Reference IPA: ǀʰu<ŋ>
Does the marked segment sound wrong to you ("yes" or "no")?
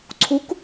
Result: yes